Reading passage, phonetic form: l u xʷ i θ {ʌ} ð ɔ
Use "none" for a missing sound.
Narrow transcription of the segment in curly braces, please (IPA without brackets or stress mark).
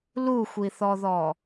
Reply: ɔ